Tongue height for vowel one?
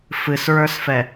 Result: high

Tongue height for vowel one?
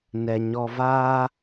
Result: mid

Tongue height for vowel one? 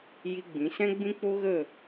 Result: high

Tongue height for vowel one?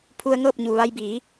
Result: high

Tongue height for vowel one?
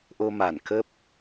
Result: mid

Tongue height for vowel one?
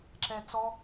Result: mid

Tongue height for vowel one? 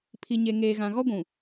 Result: high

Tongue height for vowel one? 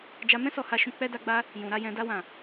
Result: low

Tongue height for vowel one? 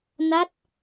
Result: low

